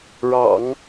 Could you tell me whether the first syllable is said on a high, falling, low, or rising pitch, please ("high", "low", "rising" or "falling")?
low